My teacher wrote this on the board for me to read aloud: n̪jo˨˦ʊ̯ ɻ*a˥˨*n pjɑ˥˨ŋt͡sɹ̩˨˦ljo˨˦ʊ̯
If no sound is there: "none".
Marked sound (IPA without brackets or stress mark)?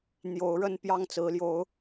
ə˥˨